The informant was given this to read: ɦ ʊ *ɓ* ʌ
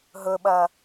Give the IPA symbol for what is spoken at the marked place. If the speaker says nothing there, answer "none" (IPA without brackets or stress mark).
ɓ